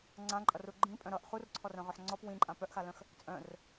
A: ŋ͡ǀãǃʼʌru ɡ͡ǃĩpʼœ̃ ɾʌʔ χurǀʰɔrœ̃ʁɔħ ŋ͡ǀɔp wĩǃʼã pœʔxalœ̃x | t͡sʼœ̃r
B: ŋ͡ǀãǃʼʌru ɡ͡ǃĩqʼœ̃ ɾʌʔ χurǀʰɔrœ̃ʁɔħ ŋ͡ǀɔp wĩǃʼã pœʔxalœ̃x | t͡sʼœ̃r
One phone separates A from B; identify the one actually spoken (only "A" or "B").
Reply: A